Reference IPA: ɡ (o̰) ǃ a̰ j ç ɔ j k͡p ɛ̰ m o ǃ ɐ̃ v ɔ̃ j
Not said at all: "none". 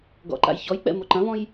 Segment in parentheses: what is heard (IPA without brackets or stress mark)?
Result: ɔ̰